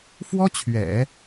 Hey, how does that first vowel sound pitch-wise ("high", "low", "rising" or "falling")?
high